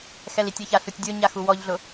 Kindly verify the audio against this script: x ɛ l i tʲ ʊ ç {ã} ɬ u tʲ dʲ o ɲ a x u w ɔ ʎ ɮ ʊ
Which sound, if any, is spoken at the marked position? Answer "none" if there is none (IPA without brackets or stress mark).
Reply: a